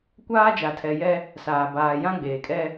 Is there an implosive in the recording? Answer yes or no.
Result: no